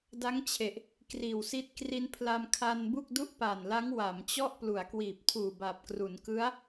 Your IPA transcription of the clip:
d a˦˥ ŋ t͡ɕʰ e˨˩ ʔ | k r iː˨˩ w s i˦˥ t̚ k r i˧ n pʰ l a˧ m kʰ a˧ n b u˥˩ k̚ d u˥˩ ʔ p aː˨˩ n l a˦˥ ŋ w a˩˦ m t͡ɕ ɔ˥˩ ʔ p l u˩˦ a̯ k w iː˨˩ p̚ tʰ uː˨˩ b a˨˩ p̚ k r u˩˦ n k ɯ˦˥ a̯

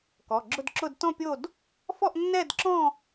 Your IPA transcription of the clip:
k ɔ˩˧˩ ɡ͡ǁ ʊ˥˧ d ǁ ʊ˥˧ d t ɔ̃˥˧ pʲ o˥˧ d | f ɔ˥˧ ʔ nː ɛ˥˧ d ǁ ɔ̃˥˧

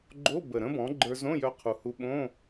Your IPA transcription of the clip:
ɡ͡ǃ o˧˥˧ b ə˨˩ ɾ ə̃˦˥ b ɔ̃˩˥ ɡ͡ǃ ə˞˧ z õ˧˥˧ j œ˧ qʰ u˨˩ h u˧ ɓ õ˧˥˧

